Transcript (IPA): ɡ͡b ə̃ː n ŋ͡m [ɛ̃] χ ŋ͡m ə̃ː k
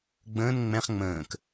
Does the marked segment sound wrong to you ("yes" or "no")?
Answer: no